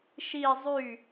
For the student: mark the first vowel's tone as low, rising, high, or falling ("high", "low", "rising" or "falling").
falling